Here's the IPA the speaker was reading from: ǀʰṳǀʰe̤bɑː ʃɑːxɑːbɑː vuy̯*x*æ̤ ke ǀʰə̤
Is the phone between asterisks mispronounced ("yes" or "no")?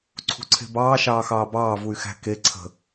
no